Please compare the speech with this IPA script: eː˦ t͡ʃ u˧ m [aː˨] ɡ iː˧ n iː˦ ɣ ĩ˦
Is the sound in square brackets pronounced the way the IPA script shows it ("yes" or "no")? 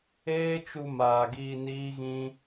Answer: yes